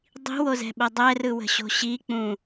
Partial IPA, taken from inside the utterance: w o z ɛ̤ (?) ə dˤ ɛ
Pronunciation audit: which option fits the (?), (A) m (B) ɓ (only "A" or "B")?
B